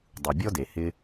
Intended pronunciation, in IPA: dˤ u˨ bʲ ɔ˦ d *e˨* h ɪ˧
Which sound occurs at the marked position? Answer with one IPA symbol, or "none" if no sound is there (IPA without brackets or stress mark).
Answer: e˨